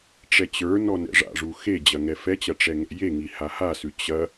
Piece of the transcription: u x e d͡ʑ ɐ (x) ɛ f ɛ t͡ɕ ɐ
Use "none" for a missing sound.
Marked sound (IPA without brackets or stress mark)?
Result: ŋ